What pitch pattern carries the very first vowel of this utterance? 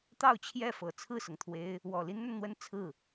falling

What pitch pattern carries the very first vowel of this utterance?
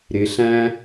rising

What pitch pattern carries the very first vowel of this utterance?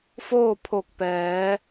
falling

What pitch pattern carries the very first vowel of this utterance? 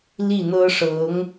falling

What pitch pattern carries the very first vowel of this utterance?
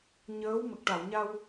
rising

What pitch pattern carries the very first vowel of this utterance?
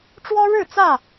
high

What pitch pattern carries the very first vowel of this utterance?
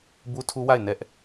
high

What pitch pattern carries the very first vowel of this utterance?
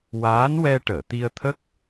rising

